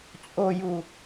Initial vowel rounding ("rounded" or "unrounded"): rounded